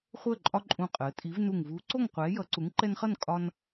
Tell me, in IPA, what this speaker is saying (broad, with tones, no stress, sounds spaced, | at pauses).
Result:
χʷ əː˥˨ ǃʼ ɒ˦ ǃʼ ũ˧˩ qʼ əː˩˧ tʼ i˨˥ v n u˧˩ ŋ v uː˨˥ ǀ o˥˨ ŋ qʷ ɛː˨˥ j ʌ˨˥ ǀ u˨˥ ŋ ǃ ɛ˦ n χ ʌ˥˨ n kʼ ɒ˦ n